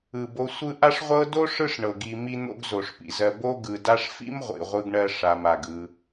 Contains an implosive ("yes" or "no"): no